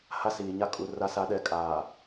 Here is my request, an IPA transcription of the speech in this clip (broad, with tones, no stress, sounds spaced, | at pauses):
h a˦ s iː˨ ɲ a˦ kʼ u˨ r a˦ s a˦ ɗ ɛ˦˨ kʼ aː˨